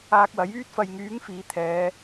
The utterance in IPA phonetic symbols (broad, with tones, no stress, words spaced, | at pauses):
aː˧k̚wɐ˨˥jyː˥t̚ fɐ˨jŋyː˨˥ŋ fiː˨˥t̪ʰɛː˨˧